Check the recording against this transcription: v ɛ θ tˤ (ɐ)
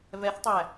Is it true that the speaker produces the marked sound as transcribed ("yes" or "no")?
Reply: no